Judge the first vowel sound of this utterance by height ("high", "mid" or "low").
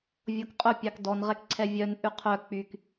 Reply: mid